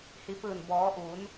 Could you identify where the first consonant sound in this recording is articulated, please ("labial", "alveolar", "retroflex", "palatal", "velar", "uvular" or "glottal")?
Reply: glottal